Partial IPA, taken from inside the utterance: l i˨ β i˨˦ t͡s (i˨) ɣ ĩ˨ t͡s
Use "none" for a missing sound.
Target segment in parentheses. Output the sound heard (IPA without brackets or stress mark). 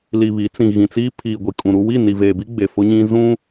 ĩ˨